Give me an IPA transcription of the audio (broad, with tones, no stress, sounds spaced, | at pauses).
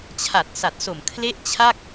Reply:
t͡ɕʰ a˨˩ t̚ s a˨˩ t̚ s o˨˩ m kʰ l e˥˩ ʔ t͡ɕʰ a˥˩ k̚